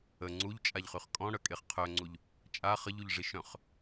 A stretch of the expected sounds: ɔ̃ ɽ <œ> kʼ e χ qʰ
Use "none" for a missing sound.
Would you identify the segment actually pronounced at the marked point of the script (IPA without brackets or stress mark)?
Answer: œ